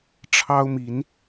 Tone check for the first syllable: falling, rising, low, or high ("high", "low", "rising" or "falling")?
high